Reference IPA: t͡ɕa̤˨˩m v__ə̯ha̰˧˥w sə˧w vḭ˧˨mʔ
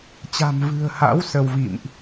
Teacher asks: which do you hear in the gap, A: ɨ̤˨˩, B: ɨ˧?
A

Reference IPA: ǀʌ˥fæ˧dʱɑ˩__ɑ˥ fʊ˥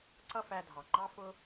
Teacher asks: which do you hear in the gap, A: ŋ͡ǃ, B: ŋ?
A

